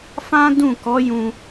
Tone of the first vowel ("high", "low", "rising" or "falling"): high